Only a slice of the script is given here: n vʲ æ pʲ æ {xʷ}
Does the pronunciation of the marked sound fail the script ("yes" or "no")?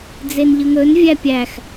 yes